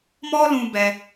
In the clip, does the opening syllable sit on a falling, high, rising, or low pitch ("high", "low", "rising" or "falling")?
high